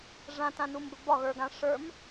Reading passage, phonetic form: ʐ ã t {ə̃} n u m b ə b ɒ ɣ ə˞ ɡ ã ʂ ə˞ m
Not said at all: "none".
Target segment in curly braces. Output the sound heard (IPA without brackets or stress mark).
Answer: ã